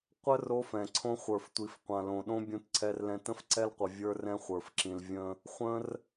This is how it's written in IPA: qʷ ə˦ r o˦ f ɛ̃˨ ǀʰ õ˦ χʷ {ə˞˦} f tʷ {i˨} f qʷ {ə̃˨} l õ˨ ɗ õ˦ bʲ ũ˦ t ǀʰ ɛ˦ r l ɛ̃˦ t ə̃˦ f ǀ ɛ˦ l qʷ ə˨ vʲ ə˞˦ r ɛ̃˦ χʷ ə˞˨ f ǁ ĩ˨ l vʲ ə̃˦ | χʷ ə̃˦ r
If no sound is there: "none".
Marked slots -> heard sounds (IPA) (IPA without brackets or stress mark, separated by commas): ə˞˨, i˨, ã˨